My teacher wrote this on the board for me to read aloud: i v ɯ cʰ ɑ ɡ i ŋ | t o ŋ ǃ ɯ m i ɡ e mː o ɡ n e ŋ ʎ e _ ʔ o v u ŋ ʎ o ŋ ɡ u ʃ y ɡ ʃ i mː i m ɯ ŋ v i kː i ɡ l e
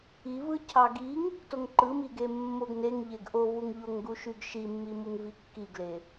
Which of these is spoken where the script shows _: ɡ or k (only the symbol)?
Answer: ɡ